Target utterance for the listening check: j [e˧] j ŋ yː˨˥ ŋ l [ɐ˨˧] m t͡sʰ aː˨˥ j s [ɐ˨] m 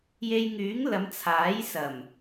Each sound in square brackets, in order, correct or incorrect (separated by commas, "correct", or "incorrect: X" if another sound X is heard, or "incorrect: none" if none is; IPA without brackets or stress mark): correct, correct, incorrect: ɐ˨˩